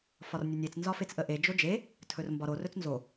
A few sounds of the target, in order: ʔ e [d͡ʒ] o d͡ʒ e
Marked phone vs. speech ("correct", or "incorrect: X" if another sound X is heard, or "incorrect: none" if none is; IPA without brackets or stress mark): correct